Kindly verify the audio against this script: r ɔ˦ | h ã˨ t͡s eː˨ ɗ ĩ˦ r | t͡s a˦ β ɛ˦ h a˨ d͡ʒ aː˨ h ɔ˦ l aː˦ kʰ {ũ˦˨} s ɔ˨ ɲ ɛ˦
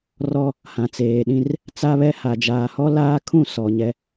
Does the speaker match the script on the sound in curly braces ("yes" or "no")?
yes